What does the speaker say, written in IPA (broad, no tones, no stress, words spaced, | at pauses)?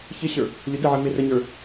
çɪɕə˞ | lʲʊdəʕə mɪrəɲə˞